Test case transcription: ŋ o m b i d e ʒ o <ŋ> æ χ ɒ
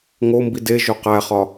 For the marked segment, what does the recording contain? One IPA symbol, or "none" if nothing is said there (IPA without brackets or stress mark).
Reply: q